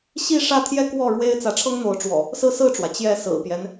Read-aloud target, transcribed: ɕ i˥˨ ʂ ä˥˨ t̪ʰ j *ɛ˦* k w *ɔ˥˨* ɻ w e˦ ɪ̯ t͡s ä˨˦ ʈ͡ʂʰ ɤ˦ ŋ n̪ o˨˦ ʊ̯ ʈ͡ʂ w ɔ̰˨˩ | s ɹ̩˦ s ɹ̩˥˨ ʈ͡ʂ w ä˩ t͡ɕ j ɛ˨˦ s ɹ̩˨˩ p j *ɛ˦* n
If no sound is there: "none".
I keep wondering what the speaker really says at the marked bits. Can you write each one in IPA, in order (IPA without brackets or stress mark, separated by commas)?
ɛ˦, ɔ˥˨, ɛ˦